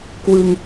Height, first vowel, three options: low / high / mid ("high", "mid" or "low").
high